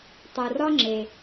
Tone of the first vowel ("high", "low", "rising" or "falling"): low